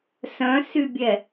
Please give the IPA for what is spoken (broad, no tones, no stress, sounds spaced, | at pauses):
s œ̃ s y bʲ ɛ